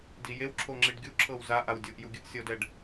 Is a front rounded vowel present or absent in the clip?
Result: absent